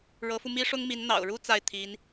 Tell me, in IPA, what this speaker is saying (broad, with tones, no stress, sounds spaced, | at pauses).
ɻ ɤ˧˥ f u˧ m i˥ ʂ ʊ˥ ŋ m i˧˥ n n̪ ɑ̰˨˩ ʊ̯ ɻ u˥ t͡s a˥˩ ɪ̯ t̪ʰ i˧˥ n